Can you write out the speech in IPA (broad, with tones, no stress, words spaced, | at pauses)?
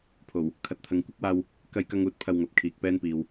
pʰo˨˩w | kʰɐ˨t̚t̪ʰɐ˨ŋ kʷɐ˥k̚waː˧w | kɐ˧jkɐ˧ŋ uː˨˥t̚pʰɐ˧wŋɐ˨p̚ kʰiː˨k̚pɛː˥npiː˨w